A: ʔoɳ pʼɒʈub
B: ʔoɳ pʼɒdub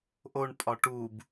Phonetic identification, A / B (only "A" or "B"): A